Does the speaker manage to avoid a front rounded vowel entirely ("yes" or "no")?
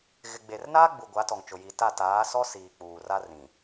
yes